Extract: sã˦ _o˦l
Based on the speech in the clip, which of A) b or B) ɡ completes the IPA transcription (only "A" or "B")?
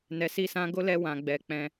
B